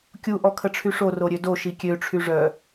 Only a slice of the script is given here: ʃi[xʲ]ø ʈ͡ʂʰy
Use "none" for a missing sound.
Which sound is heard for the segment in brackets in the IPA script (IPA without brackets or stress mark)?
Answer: kʲ